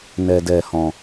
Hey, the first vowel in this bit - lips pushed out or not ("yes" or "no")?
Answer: no